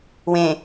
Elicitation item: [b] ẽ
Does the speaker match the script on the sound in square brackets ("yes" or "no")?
no